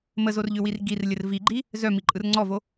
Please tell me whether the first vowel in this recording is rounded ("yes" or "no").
no